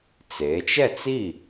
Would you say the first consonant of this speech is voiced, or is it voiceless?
voiceless